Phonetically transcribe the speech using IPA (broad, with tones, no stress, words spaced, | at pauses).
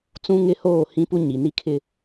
t͡sũ˦ŋɪ˦ hoː˦˨hĩ˦pu˦ ɲi˨ni˦kʰɪ˦